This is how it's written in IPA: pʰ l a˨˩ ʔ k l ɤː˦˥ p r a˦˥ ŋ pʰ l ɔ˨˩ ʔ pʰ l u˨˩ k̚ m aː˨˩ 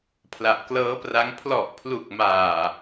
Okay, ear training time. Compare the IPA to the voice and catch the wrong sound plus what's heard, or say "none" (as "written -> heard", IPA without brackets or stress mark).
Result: none